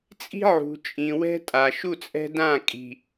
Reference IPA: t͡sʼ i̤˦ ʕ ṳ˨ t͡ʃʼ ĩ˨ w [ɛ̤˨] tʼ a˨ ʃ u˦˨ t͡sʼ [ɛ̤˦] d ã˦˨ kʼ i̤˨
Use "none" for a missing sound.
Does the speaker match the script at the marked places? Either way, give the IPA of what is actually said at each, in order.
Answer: ɛ̤˦, ɛ̤˦

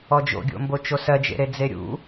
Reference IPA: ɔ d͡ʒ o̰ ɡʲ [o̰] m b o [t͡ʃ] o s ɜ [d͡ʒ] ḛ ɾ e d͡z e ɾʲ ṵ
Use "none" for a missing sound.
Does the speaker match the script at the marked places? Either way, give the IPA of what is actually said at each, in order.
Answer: o̰, t͡ʃ, d͡ʒ

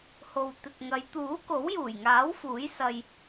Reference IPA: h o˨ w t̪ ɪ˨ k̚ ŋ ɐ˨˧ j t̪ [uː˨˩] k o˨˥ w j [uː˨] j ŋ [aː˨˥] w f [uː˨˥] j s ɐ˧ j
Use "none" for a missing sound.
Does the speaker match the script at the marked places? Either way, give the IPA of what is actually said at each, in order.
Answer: uː˨˥, uː˨˩, aː˨˥, uː˨˥

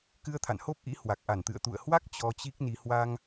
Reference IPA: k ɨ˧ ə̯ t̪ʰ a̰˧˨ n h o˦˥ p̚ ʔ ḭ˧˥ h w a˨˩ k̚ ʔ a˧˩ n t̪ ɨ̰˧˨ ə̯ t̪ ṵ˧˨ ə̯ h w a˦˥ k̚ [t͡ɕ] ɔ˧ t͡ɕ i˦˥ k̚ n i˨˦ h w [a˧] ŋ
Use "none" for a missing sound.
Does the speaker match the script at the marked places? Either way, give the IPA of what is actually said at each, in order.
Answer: t͡ɕ, a˧

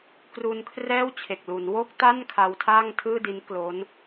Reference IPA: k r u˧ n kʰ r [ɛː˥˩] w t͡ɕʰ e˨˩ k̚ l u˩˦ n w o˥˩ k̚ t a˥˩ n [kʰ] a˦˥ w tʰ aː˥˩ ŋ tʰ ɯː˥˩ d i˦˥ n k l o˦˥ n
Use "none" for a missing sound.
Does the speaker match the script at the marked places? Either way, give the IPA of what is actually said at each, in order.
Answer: ɛː˥˩, kʰ

